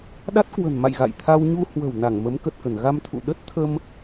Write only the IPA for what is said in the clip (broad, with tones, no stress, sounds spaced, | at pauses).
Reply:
ɗ a˦˥ t̚ k w ə̤˨˩ n m a̰˧˨ j ɣ a̰˧˨ j t̪ʰ a˧ w ɲ u˧ h w ə̤˨˩ w n a˧˩ ŋ m ə˨˦ m k ə˨˩ t̚ k ə˧˩ n ɣ a˧ m t̪ʰ ṵ˧˨ ɗ ə˦˥ t̚ t̪ʰ ə˧ m